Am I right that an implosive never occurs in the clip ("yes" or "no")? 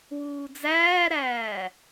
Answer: yes